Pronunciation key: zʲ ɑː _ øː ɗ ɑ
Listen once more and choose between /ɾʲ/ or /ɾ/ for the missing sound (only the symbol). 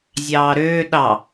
ɾ